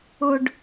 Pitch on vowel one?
low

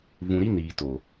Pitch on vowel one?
low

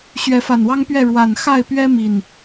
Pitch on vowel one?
rising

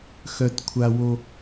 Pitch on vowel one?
high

